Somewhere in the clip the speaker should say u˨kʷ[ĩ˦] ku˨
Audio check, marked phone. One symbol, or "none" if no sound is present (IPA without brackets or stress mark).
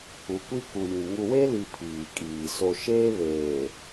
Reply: i˦